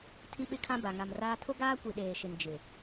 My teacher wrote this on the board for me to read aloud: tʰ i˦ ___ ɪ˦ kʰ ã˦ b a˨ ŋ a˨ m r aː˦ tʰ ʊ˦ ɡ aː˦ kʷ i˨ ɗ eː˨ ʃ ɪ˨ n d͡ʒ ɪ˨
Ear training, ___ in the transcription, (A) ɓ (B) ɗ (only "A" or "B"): A